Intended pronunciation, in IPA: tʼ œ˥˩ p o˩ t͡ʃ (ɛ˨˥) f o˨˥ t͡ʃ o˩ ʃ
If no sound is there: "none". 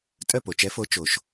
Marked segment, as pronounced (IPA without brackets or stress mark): ɛ˨˥